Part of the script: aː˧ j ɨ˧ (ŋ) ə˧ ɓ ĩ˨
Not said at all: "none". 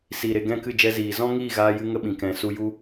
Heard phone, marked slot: ŋ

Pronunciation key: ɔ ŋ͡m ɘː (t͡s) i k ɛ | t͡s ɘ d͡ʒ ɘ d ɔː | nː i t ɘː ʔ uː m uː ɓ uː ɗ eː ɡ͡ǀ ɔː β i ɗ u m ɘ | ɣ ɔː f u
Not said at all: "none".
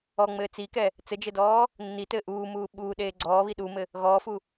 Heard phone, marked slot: t͡s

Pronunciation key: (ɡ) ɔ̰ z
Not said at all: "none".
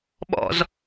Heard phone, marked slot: ɓ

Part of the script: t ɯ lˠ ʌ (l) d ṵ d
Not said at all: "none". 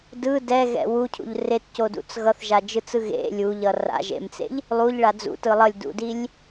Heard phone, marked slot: lʲ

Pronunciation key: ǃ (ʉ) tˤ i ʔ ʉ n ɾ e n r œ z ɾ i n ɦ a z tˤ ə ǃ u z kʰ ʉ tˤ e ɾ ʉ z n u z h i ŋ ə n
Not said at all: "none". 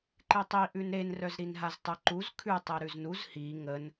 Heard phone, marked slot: ɨ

